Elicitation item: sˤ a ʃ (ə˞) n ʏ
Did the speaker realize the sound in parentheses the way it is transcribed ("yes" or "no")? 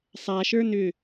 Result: yes